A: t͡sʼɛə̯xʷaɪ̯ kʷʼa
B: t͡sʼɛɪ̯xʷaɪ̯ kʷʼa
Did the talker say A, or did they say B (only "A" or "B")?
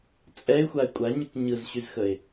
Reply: B